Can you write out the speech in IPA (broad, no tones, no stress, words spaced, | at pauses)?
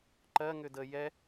ǃɜŋʏ də jɛ